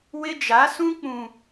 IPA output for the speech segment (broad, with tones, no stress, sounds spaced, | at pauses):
w ɪ˦ d͡ʒ a˨˦ s ũ˦ k͡p ũ˨